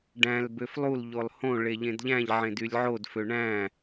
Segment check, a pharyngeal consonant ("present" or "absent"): present